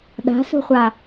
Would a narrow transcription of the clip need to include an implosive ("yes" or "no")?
yes